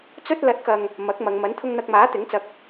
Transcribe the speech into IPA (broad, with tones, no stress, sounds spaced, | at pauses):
t͡s ɵ˧ t̚ l ɐ˨˥ t̚ k ɐ˧ ŋ | m ɐ˨˥ k̚ m ɐ˨˧ ŋ m ɐ˨˥ n t̪ʰ ʊ˧ ŋ n̪ ɐ˧ k̚ m aː˨˥ t̪ ɪ˨˥ ŋ t͡s ɐ˧ k̚